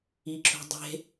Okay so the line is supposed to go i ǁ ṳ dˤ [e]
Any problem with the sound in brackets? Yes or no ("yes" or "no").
yes